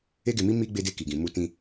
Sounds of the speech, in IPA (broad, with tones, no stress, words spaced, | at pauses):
e˦ɡe˧mi˦ mi˦ ɡ͡be˧de˧ki˨ɡĩ˨ mu˧tĩ˧